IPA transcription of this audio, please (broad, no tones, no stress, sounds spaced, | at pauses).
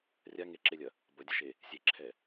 rʲ a ŋ e ǁ e lʲ ɐ | b ɐ dʲ ɐ ʃ e | sʲ e ǁʰ ɛ